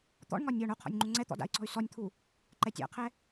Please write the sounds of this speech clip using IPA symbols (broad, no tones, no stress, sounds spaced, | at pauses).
t̪ ɔ̰ ɳ ŋ ɒ nʲ ɔ ɳ o qʰ ɔ̰ nʲ ŋ͡ǃ u ŋ͡ǀ ɛ t̪ ɔ̰ d a̰ i̯ ǀ ɔ̤ y̯ s ɔ nʲ t̪ʰ u | ǃ ɛ tʲ a̰ qʰ ɛ